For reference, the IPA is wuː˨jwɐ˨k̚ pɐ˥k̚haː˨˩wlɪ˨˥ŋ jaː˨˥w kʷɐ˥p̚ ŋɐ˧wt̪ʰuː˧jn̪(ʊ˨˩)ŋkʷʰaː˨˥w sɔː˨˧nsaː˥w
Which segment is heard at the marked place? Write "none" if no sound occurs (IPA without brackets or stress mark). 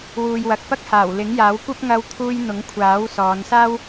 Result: ʊ˨˥